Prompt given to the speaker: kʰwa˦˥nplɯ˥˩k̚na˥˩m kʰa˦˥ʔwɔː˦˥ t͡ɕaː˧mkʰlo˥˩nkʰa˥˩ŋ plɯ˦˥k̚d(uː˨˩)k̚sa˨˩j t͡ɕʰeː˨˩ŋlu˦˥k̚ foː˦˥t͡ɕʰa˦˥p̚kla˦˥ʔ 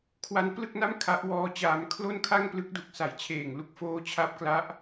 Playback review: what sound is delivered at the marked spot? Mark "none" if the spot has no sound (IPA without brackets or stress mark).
u˨˩